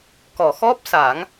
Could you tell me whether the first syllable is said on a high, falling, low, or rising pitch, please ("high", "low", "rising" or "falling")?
low